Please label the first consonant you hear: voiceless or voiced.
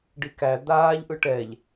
voiced